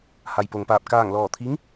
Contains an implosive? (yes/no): no